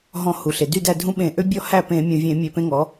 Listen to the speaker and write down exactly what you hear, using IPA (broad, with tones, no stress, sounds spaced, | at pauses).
ɦ ɔ̃˧˩ h u˩ ɬ e˩ d y˥˩ d æ˥˩ dʱ ũ˦ ɓ ẽ˧˩˧ ʔ ø˦ bʲ ɔ˥˩ h æ˥˩ p ẽ˧˩˧ mʲ ũ˩ vʲ ẽ˧˩˧ mʲ ø˧˩˧ p ẽ˦ ŋ ɔ˩˥